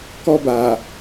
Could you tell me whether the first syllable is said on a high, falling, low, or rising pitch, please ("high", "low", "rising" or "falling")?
high